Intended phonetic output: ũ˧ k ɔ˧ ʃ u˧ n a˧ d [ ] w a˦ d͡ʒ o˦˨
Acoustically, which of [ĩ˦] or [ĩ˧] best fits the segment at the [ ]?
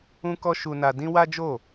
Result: ĩ˦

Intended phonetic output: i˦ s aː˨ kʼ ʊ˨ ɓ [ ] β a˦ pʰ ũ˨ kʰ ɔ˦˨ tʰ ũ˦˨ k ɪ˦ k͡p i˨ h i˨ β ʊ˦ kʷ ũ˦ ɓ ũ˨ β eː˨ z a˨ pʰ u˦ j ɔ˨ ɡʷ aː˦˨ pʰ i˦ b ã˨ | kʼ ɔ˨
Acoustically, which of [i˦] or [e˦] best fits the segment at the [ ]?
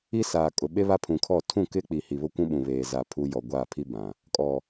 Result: e˦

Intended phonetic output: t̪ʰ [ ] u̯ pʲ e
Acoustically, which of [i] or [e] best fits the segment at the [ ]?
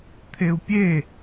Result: e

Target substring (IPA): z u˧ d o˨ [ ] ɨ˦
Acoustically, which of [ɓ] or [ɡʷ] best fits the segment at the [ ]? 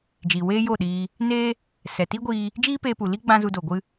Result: ɡʷ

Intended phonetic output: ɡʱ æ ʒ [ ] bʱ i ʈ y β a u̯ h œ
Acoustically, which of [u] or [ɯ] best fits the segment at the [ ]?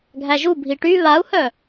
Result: u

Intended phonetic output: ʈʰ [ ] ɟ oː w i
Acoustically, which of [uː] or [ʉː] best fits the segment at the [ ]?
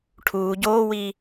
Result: uː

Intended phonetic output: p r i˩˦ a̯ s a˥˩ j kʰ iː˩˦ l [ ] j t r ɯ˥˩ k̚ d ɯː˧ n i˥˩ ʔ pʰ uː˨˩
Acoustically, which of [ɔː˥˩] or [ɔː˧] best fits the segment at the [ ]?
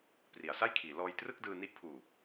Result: ɔː˧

